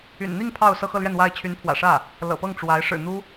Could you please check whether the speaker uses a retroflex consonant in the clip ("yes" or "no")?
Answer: yes